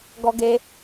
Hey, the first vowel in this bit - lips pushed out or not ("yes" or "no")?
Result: yes